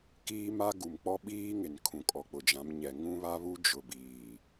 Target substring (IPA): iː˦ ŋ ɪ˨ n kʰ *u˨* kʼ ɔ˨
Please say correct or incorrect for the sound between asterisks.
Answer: incorrect